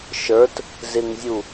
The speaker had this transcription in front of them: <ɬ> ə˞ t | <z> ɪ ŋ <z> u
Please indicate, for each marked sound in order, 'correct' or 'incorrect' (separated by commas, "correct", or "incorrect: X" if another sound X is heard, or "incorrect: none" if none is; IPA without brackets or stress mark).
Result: incorrect: ʃ, correct, incorrect: zʲ